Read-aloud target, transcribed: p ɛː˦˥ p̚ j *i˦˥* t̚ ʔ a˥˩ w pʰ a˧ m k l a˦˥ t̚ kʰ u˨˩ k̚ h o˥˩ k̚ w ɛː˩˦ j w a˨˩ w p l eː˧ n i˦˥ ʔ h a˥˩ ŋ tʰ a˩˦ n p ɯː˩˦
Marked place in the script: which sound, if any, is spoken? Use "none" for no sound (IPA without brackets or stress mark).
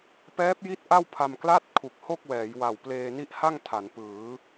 i˦˥